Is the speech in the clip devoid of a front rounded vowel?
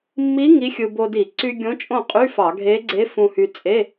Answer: no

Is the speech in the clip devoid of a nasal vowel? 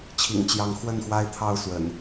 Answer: yes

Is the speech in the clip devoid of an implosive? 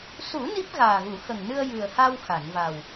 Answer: yes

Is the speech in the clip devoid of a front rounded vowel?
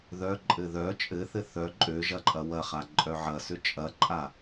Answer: no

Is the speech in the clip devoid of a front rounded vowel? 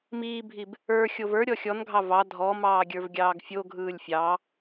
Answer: yes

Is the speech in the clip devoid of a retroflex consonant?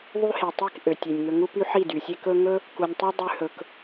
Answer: yes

